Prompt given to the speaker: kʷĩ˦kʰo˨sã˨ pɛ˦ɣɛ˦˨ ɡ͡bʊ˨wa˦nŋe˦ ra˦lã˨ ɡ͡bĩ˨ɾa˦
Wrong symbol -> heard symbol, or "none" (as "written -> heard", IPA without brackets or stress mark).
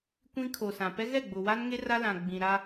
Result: none